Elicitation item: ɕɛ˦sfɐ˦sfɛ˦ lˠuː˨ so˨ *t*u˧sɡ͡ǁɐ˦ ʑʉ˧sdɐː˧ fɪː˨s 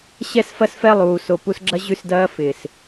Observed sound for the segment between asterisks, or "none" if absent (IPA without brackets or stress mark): p